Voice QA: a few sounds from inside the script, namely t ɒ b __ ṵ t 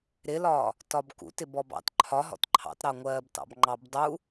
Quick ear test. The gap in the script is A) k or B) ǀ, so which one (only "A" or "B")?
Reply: A